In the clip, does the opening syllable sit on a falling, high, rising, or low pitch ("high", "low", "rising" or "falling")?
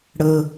low